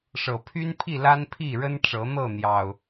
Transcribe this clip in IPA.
ʂ ɤ˨˩ pʰ y˦ n pʰ i˥˨ l a˦ n pʰ i˥˨ ɻ ə˦ n ʈ͡ʂ ɤ˨˦ n̪ ɤ˥˨ n̪ j ɑ˨˩ ʊ̯

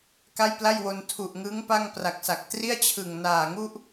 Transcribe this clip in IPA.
k a˥˩ j p l a˥˩ j w o˧ n tʰ u˨˩ ʔ ŋ ɯ˦˥ ŋ p a˥˩ ŋ p r a˨˩ k̚ s a˨˩ k̚ t r i˥˩ a̯ t͡ɕʰ ɯ˨˩ ŋ n aː˨˩ ŋ u˥˩ ʔ

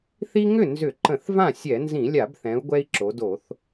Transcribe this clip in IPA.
θ i˦ ŋ ʏ˥˩ n z ʏ˧˩˧ ǃ ə̃˧˩˧ θ v ã˥˩ sʲ ɛ˧˩˧ n z ĩ˧˩˧ lʲ a˧˩˧ b θ ɛ̃˩˧ u̯ ɡʷ ɛ˦ i̯ ǁ o˩˧ d o˧˩˧ θ

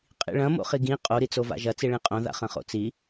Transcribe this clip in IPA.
qʼ ḭ ɭ ɐ̃ m o̰ χ i ɡ ĩ qʼ o ɾ i t͡s o v a̰ ʒ ɐ t͡s i ɭ ĩ qʼ õ ð a̰ χ ɐ̃ χ o̰ t͡s i

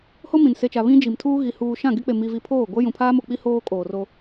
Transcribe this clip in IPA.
h o˦ m ĩ˨ n s e˨ t͡ʃ a˨ β ĩ˦ d͡ʒ i˨ m tʰ uː˦ ɣ i˨ h uː˨ ʃ ã˦˨ ɡ e˦ k͡p e˨ m i˨ v i˨ pʰ oː˦˨ ɡʷ ɛ˦ j ũ˨ pʰ aː˦ m o˨ k͡p i˦ h oː˦ kʼ oː˨ r o˦

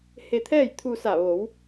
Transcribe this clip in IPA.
h e˧ t̪ʰ ɛː˥˨ j t̪ʰ u˧ s a˧˩ ʋ o˩˧ w

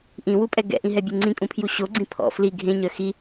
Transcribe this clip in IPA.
ʔ ĩ w u pʼ ɛ ɡ ɛ̰ ʔ ĩ ɦ ɛ bʲ e ŋ͡ǀ ĩ kʼ ũ pʰ j u ɕ o ɡ͡ǀ ĩ pʰ ɔ̰ f l i ɡʱ ẽ ɲ œ x i

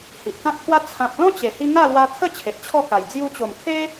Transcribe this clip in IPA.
h i˨ ʔ k ã˦ k̚ t̪ʰ w a˦ t͡sʰ ã˦ p̚ l ɔ̃˦ t͡ɕ e˨˩ h i˧ ŋ a˥˧ l w a˧ t̪ʰ ə˥˧ t͡ɕʰ e˨ t̚ t͡ɕʰ ɔ˥˧ k a˨˩ j d͡z j u˧ t͡ɕ o˨˩ m kʰ e˦

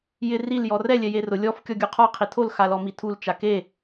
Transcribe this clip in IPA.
j ɪ r i l j ɔ r ɛ lʲ ɛ j e r ʊ lʲ ɔ f kʲ ɔ ɡʲ u qʰ ɔ qʰ i tʰ o l x a l ɔ m i tʰ u l t͡ʃ a k e

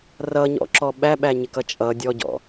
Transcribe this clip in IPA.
r ʌ ɲ ɔ̰ ǁ ɔ ɓ æ ɓ æ ɲ ɪ k ʌ t͡ʃʼ ʌ dʲ ɔ ɟ ɔ̰

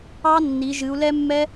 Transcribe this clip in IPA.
ɑ˦˥ nː i˨˦ ʒ ɨ˨˦ u̯ l ɛ˦˥ mː ɛ˦˥

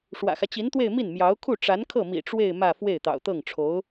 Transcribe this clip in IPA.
ʂ w ä̰˨˩ x ä˦ t͡ɕ i˧˥ n t̪ w e˥˧ ɪ̯ m i˥˩ n m j ɑ˧˥ ʊ̯ kʰ u˥˩ ʈ͡ʂ a˧˥ n kʰ ɤ˥˩ m ḭ˨˩ ʈ͡ʂ w e˥˧ ɪ̯ m ä˥˧ f w e˥˩ ɪ̯ t̪ ɑ̰˨˩ ʊ̯ t̪ ɤ˥˩ ŋ ʈ͡ʂʰ o˧˥ ʊ̯

